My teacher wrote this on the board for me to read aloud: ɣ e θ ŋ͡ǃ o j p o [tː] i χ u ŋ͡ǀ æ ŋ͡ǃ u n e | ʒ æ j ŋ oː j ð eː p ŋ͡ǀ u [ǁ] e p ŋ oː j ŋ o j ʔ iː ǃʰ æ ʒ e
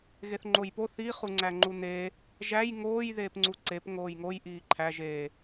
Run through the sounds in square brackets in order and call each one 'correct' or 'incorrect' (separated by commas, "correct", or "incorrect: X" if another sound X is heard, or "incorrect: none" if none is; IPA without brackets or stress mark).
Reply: incorrect: θ, incorrect: ǀ